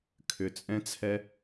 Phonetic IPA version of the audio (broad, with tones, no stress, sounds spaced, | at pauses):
kʰ ʏ˨ t͡sʼ ɛ̃˧ t͡sʰ ɛ˧